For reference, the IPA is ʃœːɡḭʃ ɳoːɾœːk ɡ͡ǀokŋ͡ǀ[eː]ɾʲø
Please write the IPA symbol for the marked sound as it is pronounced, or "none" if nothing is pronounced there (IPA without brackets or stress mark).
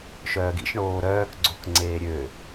eː